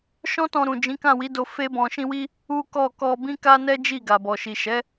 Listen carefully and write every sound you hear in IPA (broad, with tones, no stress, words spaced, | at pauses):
ʃɔ̃˦tɔ̃˧ɾũ˨ d͡ʒĩ˨˦kã˦˨wi˨˦do˧ fe˦bɔ̃˧ ʃĩ˦wi˦ | u˦ kɔ˦˨ kɔ˧bĩ˦ ka˦nɛ˦d͡ʒi˦˨ ɡa˨bɔ˨ʃi˨ʃɛ˨˦